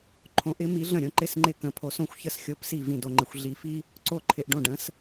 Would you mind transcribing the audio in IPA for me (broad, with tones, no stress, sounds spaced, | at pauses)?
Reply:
ǃʰ õ˧˥ ʔ ɪ˧˥ m i˧˥ ɮ ə̃˥˩ ɾʲ õ˧ ǃ ɪ˥˩ s ŋ͡ǃ ɪ˥˩ k ə̃˧ pʰ o˧˥ s õ˥ xʷ ç ə˥˩ s xʲ o˧˥ p s i˥˩ v ĩ˥˩ d o˧ ŋ͡ǃ ɪ˧ xʷ ɮ i˧ f i˥ | ǀ o˥˩ ǃʰ ɪ˧ ʔ ɖ õ˥˩ ɖ ə̃˧˥ s